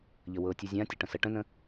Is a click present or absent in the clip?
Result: absent